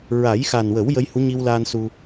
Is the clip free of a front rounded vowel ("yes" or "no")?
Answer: yes